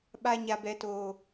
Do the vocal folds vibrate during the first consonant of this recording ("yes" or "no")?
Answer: yes